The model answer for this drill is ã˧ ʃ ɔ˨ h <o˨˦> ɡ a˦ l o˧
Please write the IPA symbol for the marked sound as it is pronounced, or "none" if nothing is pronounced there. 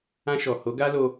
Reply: o˨˦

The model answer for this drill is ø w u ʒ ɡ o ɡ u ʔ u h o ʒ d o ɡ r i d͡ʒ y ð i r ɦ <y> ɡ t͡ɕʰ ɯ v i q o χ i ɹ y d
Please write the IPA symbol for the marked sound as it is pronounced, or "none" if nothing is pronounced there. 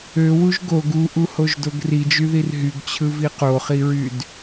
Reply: y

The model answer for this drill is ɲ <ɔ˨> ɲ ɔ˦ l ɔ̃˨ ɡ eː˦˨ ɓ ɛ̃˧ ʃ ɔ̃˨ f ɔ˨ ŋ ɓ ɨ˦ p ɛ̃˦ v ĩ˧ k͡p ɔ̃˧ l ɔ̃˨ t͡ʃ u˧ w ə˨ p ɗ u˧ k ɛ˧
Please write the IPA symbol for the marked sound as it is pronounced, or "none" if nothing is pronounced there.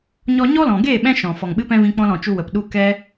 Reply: ɔ˧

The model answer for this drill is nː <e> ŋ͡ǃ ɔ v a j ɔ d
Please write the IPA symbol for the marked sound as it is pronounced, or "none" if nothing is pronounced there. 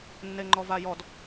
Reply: e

